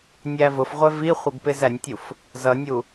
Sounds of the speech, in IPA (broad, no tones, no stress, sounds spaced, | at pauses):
nʲ æ v ʊ f ʁʷ ɛ v i χʷ ə ɡ p ɪː z æ nʲ tʲ u f | z ʌ nʲ u